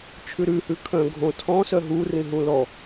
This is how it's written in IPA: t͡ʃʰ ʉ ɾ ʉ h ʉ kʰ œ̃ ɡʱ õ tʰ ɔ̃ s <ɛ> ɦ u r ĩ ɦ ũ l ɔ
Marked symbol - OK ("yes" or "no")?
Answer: no